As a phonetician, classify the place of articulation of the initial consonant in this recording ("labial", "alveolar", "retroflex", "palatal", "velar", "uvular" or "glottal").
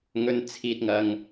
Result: velar